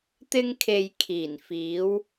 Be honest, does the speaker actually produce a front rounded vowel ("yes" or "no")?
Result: no